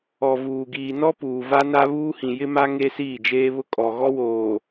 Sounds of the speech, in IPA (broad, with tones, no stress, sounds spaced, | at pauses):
ɔ˨ v uː˨ ɡ iː˨ n ɔ˦ p uː˨ v a˦ n a˦ β uː˦ h ĩ˨ j ɪ˦ m a˦ ŋ e˦ s iː˦˨ d͡ʒ eː˦ β ʊ˦ kʼ ɔ˨ ɣ ɔ˦ w oː˨